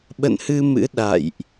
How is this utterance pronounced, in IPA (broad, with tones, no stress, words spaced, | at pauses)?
ɓə̰˧˨nhɨ˧mɨ̰˧˥ ɗa̰˧˨jʔ